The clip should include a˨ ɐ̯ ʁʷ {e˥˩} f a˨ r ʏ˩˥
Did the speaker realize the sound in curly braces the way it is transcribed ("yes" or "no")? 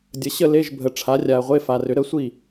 no